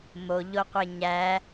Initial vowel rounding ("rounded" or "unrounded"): rounded